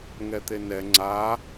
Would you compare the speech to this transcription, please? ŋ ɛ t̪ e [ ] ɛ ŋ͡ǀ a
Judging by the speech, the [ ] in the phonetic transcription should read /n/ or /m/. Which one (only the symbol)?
n